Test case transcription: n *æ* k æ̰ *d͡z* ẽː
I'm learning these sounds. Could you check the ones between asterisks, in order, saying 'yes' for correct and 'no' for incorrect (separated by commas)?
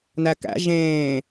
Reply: yes, no